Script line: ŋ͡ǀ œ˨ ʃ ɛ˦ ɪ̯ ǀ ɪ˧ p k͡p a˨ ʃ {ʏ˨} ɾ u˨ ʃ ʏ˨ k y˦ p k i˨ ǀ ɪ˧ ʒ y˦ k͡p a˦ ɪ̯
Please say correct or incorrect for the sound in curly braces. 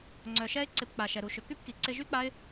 incorrect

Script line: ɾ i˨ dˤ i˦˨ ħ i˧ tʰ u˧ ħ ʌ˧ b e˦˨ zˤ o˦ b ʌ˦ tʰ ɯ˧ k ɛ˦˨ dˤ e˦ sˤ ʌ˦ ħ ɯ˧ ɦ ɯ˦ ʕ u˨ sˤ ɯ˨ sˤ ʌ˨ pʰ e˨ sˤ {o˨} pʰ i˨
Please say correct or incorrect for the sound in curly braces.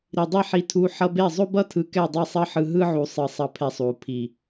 incorrect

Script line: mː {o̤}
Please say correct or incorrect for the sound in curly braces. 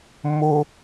incorrect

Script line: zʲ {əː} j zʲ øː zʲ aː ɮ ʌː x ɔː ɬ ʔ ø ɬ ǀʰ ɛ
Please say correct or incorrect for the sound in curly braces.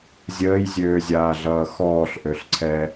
correct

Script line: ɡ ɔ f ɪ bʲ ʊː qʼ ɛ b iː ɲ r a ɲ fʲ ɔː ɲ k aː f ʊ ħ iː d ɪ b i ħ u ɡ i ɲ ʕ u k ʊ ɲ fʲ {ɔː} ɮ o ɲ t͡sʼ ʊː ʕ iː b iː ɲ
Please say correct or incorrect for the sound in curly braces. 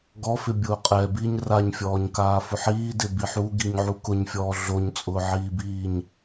correct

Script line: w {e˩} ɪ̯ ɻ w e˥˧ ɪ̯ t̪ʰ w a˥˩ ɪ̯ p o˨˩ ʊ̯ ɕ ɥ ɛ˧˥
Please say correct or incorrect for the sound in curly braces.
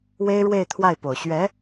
incorrect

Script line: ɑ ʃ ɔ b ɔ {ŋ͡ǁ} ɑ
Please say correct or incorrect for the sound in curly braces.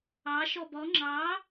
correct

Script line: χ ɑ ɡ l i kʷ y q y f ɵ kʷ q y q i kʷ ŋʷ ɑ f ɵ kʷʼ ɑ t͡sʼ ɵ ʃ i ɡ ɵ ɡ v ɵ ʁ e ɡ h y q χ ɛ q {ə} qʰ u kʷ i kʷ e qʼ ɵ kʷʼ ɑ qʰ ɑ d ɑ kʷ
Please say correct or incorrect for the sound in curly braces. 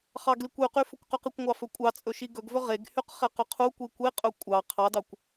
incorrect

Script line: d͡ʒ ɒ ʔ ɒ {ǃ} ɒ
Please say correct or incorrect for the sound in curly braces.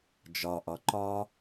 correct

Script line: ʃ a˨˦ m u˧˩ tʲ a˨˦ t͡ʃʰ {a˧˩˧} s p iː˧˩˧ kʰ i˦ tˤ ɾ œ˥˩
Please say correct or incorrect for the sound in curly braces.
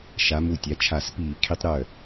correct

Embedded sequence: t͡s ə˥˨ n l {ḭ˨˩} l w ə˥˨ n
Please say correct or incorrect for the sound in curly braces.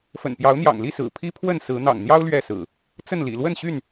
correct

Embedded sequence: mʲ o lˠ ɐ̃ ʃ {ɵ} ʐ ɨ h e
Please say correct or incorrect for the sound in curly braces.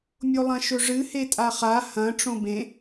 correct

